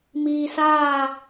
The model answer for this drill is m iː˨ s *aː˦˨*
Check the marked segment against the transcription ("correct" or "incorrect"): correct